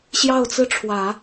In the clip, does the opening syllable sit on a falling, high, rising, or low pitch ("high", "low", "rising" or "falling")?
falling